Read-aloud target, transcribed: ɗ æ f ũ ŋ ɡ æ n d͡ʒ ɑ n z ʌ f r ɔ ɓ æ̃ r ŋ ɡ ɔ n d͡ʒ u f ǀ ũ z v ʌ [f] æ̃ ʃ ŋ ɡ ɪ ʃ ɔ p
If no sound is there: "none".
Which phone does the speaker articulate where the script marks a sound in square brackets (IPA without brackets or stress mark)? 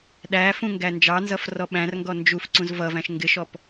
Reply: v